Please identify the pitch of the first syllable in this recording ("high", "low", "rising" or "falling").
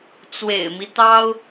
low